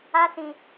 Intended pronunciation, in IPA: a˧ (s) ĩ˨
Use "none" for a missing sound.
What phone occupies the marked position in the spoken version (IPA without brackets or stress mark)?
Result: s